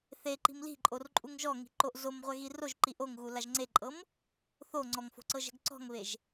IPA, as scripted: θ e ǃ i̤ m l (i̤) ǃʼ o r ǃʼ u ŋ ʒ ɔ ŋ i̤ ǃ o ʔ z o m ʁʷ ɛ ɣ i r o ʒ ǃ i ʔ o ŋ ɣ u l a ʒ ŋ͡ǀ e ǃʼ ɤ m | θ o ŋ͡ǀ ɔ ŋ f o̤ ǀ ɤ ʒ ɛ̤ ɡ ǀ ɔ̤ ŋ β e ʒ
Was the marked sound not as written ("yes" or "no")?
no